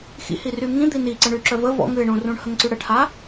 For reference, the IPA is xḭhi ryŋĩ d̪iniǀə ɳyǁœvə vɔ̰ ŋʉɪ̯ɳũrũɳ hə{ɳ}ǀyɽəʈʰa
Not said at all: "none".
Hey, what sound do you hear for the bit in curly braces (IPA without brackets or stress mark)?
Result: ŋ